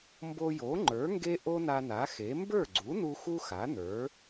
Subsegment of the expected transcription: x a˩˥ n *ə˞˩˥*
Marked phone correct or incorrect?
correct